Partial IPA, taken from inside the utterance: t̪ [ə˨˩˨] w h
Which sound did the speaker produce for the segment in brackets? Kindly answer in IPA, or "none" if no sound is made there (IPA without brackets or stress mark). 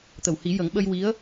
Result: ə˨˩˨